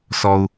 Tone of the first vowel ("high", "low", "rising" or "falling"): low